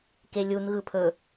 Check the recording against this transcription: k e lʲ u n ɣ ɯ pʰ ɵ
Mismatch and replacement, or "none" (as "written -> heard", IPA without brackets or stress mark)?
none